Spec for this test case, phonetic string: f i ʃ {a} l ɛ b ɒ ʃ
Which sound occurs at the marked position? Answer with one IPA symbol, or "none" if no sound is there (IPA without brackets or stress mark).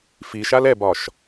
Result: a